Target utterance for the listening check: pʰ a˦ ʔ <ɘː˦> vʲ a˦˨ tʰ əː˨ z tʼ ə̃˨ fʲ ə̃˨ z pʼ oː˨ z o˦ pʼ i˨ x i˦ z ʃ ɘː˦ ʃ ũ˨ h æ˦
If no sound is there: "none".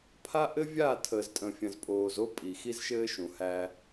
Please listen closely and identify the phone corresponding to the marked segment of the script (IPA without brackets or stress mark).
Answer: ɘ˦